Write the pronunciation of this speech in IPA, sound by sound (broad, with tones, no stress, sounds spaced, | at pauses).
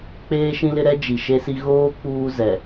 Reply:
k͡p eː˦ ʃ ĩ˦ l ɪ˦ ɾ ɛ˦ d͡ʒ i˨ ʃ e˦ s i˦ ɣ oː˦ k͡p uː˦ z ɛ˨